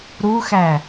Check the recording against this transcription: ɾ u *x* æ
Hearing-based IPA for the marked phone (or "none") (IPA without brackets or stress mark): x